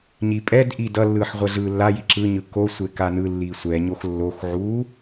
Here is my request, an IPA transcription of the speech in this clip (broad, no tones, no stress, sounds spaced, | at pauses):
ɲ i pʼ ɛ d ʔ i d ʌ lː ɯː ħ ʁʷ ɛ ɮ ɯː lː a j i ǁ ɯ ɲ ɯ k o sʷ e k a n ɯ lː iː sʷ ɛ ɲ o x lː o x ʕ uː